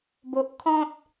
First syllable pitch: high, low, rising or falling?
low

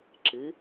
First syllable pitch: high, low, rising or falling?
rising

